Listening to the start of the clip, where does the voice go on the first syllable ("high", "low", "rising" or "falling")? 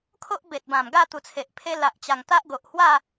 high